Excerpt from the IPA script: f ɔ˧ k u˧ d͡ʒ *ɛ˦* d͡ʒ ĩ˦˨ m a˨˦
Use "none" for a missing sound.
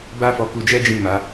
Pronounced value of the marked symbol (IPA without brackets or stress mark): ɛ˦